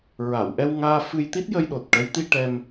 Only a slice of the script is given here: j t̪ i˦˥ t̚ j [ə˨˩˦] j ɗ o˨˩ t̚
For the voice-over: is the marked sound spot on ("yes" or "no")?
no